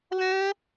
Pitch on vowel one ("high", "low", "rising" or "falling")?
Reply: high